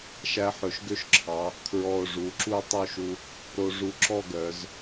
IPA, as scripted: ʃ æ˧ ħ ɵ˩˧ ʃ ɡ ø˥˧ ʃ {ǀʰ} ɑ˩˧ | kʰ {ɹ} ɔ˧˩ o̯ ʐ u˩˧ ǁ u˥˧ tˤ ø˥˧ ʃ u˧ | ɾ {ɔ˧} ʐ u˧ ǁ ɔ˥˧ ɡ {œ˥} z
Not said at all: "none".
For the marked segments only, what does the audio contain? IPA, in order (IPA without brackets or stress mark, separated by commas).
ǁʰ, ɹ, o˧, œ˩˧